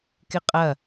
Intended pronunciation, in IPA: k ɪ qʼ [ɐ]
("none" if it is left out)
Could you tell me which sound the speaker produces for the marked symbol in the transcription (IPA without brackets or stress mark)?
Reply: ɐ